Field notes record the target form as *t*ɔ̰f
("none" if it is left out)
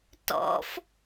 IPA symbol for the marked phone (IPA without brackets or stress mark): t